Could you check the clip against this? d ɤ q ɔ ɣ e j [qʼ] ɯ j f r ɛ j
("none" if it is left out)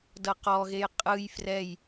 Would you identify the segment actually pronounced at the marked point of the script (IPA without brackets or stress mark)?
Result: qʼ